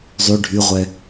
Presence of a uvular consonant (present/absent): present